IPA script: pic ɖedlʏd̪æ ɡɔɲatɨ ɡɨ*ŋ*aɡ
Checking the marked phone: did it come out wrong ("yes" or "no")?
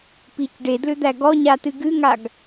no